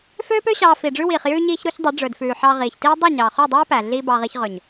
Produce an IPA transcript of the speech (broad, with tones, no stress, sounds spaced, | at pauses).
f øː˦ p ø˦ ɕ ɑː˧ f i˨ ɖ͡ʐ ʉ˦ w iː˨ χ j ʉː˧ ɲ iː˧ ç ɾ u˧ ç dˤ y˨˦ ɖ͡ʐ ɵ˨ d f ʉː˨ ħ ɑ˧ ʁ iː˨ ç t iː˦ dˤ y˦˨ ɲ ɑː˨ χ y˦˨ dˤ æː˦ p æ˨ ɮ iː˧ b ɑ˧ ʁ i˧ ç ʁ ɵ˨ ɲ